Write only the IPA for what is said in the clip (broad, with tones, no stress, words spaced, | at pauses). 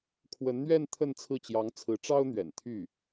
kʰwə˧˥nn̪ɥɛ˥˧n t̪ʰə˥˧nt͡sʰɹ̩˥˩ t͡ɕjɑ˧˥ŋt͡sʰɹ̩˧˥ʈ͡ʂɑ˥ʊ̯n̪ɥɛ̰˨˩n t̪ʰy˥˩